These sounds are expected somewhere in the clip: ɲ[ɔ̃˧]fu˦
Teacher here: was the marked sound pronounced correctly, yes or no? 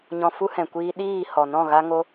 yes